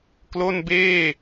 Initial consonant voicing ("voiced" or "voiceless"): voiceless